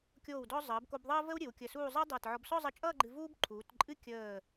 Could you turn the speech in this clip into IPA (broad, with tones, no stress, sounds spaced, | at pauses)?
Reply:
kʲ oː˧˩ w d ɔ˧ zˤ əː˩˧ b k o˧ b ðˤ əː˥ v ə˥ w ɾʲ ɨ˩˧ w kʲ əː˧˩ s uː˥˧ zˤ əː˥ dˤ ʌː˧˩ t ʕ ɔ˧ b s ɔ˥˧ zˤ ə˧ t͡ʃʼ ʌː˥˧ ɡ͡ǃ ɨ˧ v uː˥ b ǃʰ uː˩˧ t ǃʼ ɨ˥ kʲ əː˧˩